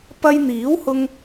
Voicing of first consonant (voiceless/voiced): voiceless